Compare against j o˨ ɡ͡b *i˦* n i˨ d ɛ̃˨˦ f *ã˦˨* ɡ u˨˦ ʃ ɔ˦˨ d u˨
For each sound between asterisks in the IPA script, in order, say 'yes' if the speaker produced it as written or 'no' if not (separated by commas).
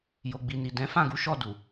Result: no, yes